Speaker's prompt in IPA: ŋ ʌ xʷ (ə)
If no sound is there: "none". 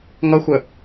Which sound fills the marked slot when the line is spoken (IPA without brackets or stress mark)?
ə